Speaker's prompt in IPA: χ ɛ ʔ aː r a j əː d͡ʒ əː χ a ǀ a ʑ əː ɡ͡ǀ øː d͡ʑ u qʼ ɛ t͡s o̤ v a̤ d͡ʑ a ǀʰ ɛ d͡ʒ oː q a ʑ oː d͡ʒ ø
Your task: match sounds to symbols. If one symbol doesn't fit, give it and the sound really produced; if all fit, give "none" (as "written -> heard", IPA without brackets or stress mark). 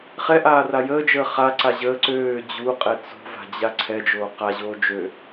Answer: ɡ͡ǀ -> ǀ